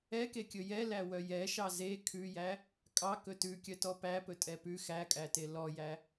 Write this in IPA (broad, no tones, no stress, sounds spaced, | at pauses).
ɛ k e kʲ ɵ j ɛ l æ w œ j ɛ ʃ ɑ z e kʰ ʉ j æ | kʼ ɑ k ɵ t ʉ kʲ œ t ɔ p æ p ɵ tʼ ɛ p ʉ x æ kʼ æ t e l ɔ j æ